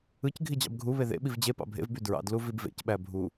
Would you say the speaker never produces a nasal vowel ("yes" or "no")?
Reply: yes